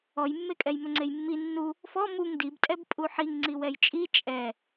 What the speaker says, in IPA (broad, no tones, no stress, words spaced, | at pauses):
ɔjmːekʼɛj mʏŋ͡ǀejmːi nːu | fɔ muŋ dibtʼɛb pʼuħiŋ ŋ͡ǀiwɛjt͡ʃʼi t͡ʃʼɛ